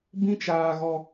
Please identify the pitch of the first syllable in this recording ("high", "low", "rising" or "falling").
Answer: high